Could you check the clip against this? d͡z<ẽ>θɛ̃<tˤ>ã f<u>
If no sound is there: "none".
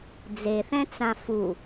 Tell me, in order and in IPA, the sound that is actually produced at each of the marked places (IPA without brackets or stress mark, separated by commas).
e, t͡s, u